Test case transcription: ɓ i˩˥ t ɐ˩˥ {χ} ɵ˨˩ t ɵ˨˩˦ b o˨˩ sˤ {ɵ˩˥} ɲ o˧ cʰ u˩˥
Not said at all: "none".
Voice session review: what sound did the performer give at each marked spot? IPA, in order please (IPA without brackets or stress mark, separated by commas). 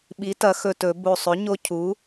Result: x, ɵ˩˥